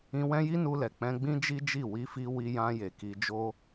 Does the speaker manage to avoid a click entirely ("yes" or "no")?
yes